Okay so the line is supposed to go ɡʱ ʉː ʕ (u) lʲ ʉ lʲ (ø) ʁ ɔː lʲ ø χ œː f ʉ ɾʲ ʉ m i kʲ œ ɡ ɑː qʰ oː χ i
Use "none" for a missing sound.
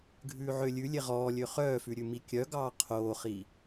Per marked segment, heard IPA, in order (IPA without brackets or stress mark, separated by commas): ø, e